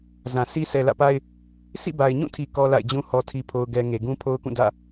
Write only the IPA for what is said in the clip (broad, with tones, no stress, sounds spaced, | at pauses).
z ã˨ sʰ i˦ sʰ ɛ˨ l ä̰˦˨ p a˦ ɪ̯ | sʰ ḭ˦˨ b a˨ ɪ̯ ɲ ũ˦˨ tʰ i˨ k ɔ˦ l a̰˦˨ ɪ̯ d͡ʑ ũ˦ h ɔ˨ tʰ i˨ pʰ o˦ ʊ̯ ɡ ɛ˦ ŋ e˨ ɡ ũ˦ pʰ o˦ ʊ̯ k ũ˦˨ d ä̰˦˨